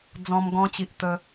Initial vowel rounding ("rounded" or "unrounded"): rounded